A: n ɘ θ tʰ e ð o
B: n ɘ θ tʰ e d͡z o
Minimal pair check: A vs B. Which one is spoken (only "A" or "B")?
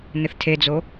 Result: B